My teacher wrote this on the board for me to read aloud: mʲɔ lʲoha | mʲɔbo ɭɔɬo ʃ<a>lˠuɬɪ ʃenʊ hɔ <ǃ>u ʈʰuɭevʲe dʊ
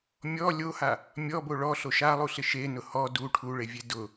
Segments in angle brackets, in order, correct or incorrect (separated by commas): correct, incorrect